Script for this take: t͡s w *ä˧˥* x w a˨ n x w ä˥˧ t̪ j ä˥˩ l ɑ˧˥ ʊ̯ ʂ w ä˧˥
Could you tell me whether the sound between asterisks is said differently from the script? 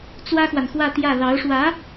yes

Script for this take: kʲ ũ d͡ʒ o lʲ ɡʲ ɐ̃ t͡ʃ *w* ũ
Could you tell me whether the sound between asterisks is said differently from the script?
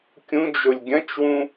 no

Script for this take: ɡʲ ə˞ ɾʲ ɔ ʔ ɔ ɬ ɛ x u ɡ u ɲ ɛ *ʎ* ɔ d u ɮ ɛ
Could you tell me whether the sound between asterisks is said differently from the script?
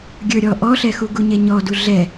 yes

